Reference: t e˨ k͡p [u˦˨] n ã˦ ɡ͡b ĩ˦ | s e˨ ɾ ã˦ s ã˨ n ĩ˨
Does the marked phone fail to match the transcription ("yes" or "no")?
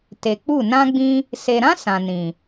no